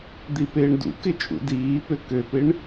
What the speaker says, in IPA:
d̪ i p ɪː ɳ d ṵ k ɪ t͡ʃʼ ṵ d iː p ø k ø p ɪ ɳ

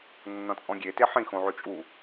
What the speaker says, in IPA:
nː ɔ̃ t͡sʼ ɔ̃ ɡʲ e t e ħ ĩ x õ ʕ ʉ t͡ʃʼ u

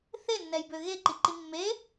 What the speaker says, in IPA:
θ e nː ɛ j b ø ɣ e ǃ i ǃ i mː e

